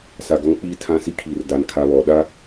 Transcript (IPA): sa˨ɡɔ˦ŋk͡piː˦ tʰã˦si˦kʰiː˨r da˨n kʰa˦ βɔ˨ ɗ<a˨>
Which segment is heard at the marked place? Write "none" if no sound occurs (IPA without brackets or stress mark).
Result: a˦